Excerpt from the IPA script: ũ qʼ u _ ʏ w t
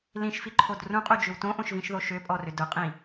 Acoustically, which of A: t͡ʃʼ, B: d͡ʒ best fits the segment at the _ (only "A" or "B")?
B